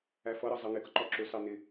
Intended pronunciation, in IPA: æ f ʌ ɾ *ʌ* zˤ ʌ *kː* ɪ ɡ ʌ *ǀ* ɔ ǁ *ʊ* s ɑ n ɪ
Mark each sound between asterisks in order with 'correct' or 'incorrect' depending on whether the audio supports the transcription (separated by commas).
correct, incorrect, incorrect, correct